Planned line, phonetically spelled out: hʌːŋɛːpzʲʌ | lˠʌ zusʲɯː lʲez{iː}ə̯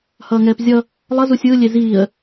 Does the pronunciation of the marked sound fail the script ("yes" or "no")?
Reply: no